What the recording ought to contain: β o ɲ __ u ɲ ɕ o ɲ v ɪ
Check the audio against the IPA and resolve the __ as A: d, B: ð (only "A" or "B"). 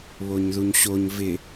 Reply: B